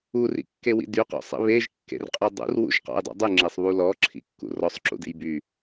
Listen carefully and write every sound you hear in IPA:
u r ḭ kː e w ḭ d y q ɔ̰ sˤ ḭ β e ʒ kː ḛ r qʼ y dˤ ṵ r w ṵ ʒ q ɔ̰ j dˤ ṵ dˤ y ŋ͡ǁ e sˤ β u l ɔ ǁʰ ḭ kː ṵ r ɔ sˤ ǁ ṵ d ḛ j b y

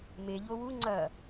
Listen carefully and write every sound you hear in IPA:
m e ʎ o w u ŋ͡ǀ ɐ

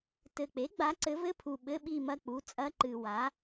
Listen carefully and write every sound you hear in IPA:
t ɘ˨˩ k͡p e˩˥ ɡ͡b a˩˥ ǀ ɘ˩˥ v ɘ˧˥˧ pʰ u˨˩ ɓ ɘ˧˥˧ ɓ i˦˨ m ɐ˦˨ k͡p u˩˥ t͡sʼ ɐ˧˥˧ ǃ ɨ˨˩ w a˩˥

